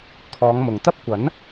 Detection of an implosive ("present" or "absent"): absent